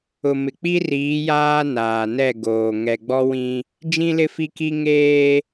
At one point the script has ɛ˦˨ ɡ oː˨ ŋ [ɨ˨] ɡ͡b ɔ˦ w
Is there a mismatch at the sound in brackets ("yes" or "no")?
yes